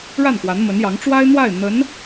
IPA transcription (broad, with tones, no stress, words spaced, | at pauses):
ɻa˥˩nkwa˧˥nmə˧˥njɑ˧˥ŋ ʈ͡ʂwa˥ɪ̯n̪wa˥˩ɪ̯ n̪ə˧˥n